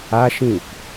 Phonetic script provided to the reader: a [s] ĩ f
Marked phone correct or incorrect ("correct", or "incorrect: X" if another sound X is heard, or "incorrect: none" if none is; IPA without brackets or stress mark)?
incorrect: ʃ